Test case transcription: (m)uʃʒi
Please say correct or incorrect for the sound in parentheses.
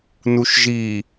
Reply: incorrect